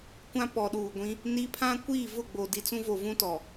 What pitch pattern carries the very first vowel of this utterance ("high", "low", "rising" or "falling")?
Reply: high